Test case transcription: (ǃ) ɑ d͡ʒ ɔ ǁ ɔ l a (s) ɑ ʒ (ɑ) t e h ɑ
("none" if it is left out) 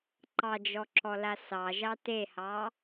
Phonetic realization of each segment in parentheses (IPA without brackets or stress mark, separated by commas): ǃ, s, ɑ